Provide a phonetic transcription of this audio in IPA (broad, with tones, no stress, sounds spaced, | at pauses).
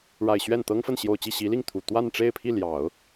ɻ a˨˩ ɪ̯ ɕ ɥ ɛ˥˩ n t̪ ɤ˥ ŋ f ə˥˩ n ɕ j o˨˩ ʊ̯ t͡ɕ i˥˩ ɕ i˧˥ l i˥˩ ŋ t̪ʰ u˨˩ t̪ w a˥˧ n ʈ͡ʂ e˥˧ ɪ̯ pʰ i˥˩ l j ɑ˨˩˦ ʊ̯